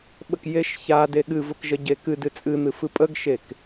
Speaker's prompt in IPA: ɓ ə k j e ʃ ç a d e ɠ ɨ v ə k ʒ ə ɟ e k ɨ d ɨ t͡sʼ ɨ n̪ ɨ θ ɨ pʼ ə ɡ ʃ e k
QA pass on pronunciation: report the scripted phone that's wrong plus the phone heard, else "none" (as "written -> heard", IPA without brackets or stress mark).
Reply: θ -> f